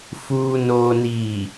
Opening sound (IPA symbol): f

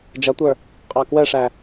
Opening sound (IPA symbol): d͡ʒ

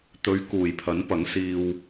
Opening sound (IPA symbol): t̪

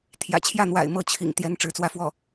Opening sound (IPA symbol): t̪ʰ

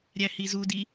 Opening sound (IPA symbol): ɾʲ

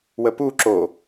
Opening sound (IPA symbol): w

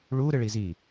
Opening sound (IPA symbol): ɭ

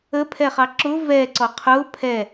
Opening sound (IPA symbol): ə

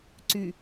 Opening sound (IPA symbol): ǀ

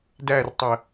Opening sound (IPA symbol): d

